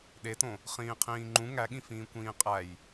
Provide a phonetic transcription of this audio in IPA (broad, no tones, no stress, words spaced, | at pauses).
ɗetõ | χĩːqʰĩːŋ͡ǃũ ŋæɠĩfĩːkʷĩː qʼæj